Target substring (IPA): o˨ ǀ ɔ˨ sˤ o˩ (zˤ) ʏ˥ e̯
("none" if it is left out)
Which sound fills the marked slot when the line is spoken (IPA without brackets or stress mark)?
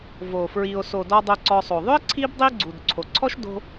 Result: ðˤ